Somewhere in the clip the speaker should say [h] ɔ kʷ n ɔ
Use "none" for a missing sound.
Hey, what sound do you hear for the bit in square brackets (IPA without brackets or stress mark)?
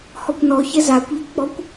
h